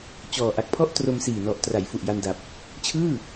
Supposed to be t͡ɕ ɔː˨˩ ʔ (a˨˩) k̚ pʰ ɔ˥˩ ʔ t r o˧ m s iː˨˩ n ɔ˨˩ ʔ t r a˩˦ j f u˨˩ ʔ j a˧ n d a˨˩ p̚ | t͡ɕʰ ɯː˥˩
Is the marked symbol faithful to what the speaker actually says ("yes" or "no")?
yes